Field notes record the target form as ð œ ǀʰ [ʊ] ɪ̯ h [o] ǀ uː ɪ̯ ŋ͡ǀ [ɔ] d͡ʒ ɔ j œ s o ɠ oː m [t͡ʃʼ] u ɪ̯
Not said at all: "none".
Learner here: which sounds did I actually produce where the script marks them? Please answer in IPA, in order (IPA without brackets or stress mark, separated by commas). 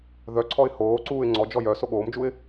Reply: ɔ, oː, ɔ, d͡ʒ